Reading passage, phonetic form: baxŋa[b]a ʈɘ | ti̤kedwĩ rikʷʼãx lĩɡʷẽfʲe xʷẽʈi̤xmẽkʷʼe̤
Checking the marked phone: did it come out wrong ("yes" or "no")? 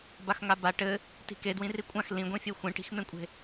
no